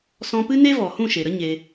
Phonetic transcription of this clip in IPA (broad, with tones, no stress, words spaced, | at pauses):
sɔ̃˧pɨ˦ne˦ vɔ˨hũ˦˨ʃe˨ɾə˦ ɲe˧